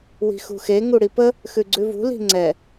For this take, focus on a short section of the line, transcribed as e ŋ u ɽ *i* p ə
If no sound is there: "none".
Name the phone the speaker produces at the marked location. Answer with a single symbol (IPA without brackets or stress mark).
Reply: i